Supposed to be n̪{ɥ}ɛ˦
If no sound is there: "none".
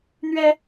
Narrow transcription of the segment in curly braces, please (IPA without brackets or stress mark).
ɥ